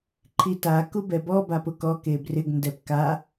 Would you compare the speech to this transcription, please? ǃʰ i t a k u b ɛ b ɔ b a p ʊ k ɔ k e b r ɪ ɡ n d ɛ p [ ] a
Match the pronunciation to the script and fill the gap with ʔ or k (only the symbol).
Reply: k